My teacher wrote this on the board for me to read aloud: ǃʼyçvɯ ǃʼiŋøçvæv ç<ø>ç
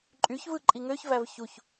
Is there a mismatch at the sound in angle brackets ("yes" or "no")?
yes